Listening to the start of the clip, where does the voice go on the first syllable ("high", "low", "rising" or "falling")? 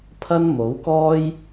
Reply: high